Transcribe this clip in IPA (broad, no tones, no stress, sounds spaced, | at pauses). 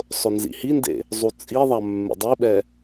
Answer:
sˤ ʊ n z ḭ h i n d ḛ | zˤ u t͡sʼ i ðˤ a mː ḛ dˤ i ɓ ɛ